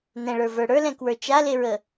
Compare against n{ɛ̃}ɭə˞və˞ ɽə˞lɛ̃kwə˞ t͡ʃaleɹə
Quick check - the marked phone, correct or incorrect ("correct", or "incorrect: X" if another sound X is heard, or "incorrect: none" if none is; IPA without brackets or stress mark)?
correct